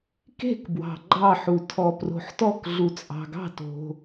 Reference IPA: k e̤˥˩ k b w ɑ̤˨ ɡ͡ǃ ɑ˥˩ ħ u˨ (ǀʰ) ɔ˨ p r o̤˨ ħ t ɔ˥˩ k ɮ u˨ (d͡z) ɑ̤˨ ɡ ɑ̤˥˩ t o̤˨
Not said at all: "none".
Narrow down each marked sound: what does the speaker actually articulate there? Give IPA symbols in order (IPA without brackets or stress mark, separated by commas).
tʰ, t͡sʼ